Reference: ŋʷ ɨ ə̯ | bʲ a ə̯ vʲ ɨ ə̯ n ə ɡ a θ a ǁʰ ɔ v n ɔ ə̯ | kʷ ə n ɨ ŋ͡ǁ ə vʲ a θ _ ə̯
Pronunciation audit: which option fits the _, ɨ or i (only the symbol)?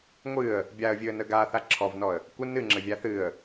ɨ